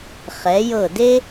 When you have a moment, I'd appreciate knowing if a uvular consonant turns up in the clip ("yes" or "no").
yes